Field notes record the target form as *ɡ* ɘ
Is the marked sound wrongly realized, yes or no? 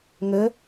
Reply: yes